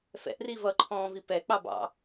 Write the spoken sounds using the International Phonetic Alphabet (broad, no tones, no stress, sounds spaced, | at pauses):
f ɛ̰ ʔ r i v ʌ ǃʰ ɔ̃ː v i p ɛ k͡p ɑ b ɑ̰